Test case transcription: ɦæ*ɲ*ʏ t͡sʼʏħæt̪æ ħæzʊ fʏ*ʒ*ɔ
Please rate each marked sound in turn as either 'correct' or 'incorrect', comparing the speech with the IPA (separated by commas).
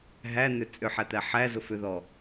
incorrect, incorrect